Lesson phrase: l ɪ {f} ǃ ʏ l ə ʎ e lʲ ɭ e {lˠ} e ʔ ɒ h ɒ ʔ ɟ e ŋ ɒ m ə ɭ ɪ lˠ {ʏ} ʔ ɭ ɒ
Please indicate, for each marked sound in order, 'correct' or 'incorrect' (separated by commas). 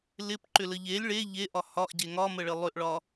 incorrect, incorrect, correct